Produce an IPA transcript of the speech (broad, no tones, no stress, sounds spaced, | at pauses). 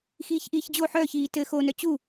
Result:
x iː ç ʔ iː ç d͡ʑ o ħ œː ç iː t ɘ x o n œ t͡ɕ u